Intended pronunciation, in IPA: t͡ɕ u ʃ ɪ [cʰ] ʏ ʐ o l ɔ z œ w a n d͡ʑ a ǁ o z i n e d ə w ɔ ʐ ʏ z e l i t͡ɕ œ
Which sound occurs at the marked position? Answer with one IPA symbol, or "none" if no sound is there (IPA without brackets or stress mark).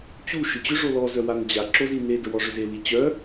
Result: t͡ɕ